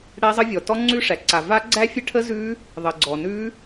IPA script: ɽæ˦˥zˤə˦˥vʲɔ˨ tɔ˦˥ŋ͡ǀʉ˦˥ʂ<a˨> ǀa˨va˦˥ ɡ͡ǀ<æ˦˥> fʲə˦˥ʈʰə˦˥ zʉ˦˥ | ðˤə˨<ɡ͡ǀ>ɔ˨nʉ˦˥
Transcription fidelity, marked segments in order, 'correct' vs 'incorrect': incorrect, correct, correct

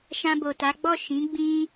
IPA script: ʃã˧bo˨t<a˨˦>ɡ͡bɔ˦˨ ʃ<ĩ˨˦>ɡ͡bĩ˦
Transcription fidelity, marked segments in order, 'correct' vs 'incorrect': correct, correct

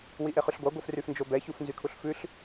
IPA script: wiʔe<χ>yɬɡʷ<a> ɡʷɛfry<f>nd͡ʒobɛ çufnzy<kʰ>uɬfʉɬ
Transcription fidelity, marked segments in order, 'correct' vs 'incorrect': correct, incorrect, correct, correct

